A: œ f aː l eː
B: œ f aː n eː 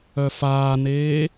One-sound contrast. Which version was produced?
B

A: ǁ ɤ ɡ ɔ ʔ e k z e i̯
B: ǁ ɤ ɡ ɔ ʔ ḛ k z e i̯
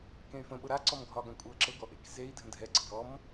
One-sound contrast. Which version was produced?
B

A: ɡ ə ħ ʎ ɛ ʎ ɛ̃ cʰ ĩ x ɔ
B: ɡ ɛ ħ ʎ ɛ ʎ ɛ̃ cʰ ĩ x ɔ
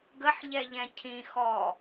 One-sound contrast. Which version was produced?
A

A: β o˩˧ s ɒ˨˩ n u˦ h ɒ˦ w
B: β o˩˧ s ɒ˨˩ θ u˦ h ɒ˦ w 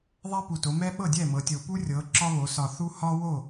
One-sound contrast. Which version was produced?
B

